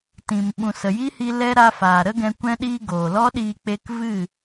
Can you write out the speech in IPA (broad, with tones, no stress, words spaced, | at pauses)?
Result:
tĩ˨m ɓũ˨sə˨ji˦hi˧ lɛ˦ ɾa˧faː˨ɾə˦ɡɛ̃˧ kʷɛ̃˧ɗiː˧ ɡoː˨lɔ˦ɗiː˧k͡pe˧k vɨ˦˨